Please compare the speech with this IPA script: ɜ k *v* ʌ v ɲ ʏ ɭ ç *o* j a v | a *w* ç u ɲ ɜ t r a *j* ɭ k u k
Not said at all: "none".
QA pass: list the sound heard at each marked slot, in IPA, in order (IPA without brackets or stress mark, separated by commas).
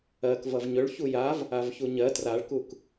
v, u, v, none